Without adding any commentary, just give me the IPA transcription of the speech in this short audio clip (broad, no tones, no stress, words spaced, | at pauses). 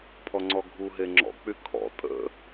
pʰɔŋ͡ǀɔɡʱuɦe ŋ͡ǁɔ̰k͡py kʰɔ̰ tʼə̰